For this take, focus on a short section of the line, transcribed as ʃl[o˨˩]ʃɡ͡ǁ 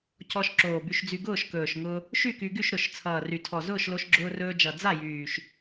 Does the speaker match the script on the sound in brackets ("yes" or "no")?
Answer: no